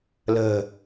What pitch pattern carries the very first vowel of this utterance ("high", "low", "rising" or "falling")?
low